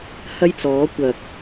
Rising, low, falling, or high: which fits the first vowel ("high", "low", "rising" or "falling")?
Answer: high